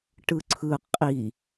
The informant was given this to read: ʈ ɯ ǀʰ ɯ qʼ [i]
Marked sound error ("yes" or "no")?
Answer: no